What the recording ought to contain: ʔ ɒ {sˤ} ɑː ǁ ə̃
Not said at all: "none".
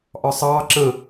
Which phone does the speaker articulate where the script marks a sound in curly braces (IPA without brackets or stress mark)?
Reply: sˤ